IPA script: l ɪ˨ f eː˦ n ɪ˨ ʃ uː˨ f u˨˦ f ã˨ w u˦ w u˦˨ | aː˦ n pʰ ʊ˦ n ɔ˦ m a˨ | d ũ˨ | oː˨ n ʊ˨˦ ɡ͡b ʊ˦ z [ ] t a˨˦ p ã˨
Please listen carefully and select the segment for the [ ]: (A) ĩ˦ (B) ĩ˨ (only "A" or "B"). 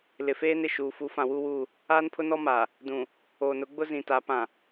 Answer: B